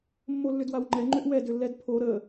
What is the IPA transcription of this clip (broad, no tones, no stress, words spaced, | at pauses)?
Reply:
mːolːʏdwawŋ͡ǃɛ ŋ͡ǃʏʔwɛ dʏlːɛdpʰo ɾə